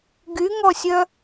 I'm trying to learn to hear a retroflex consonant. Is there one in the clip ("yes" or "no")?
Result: no